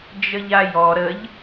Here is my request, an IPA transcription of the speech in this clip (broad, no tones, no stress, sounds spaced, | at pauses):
d͡ʒ ə ʎ a j ɔ ɾ ə ʎ